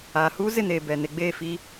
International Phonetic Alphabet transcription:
aː˨ h uː˦ z ɪ˦˨ n eː˨ b ɛ˨ n e˨˦ ɡ͡b eː˦˨ f iː˦

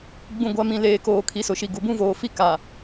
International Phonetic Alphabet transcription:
ɡ͡b ũ˨ ɡʷ a˨ m ĩ˨ l eː˨ k oː˨ kʰ i˨˦ s ʊ˨ ʃ i˨ ɡ u˨ b ũ˦ v oː˨ f i˦ k a˨

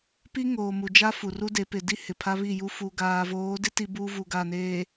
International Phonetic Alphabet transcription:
p i˦ ŋ oː˨ m u˨ d͡ʒ a˦ f u˨ r u˦ d e˨˦ p ɪ˨ d i˦ h ɪ˨ pʰ a˦ β i˦˨ j u˦ f u˨ ɡ aː˨ v oː˨˦ d ɪ˦ t i˦ b uː˦ v u˨ ɡ a˦˨ n eː˨

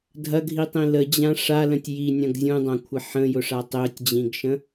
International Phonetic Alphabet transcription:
dʱ ɐ ɡʱ i tˤ ĩ l ə d͡ʑ ã ʂ a l ə̃ tʲ j i nʲ ɐ̃ ɡ zʲ ũ dˤ ã kʷʰ ɪ ħ ə̃ j ʊ ʂ a tˤ ø tʲ d͡ʑ ĩ ɡ ʃ ə̃

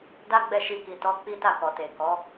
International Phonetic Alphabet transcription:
d a˦ ɡ͡b ɛ˦˨ ʃ i˧ k i˨ t ɔ˨˦ k͡p i˦ t a˦˨ k ɔ˨ t e˨ k ɔ˨˦

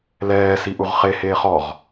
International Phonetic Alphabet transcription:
l ɛː s i ʔ u ʁ χ e h eː χ ɔ ʁ

